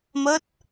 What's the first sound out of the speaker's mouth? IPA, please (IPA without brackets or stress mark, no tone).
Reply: m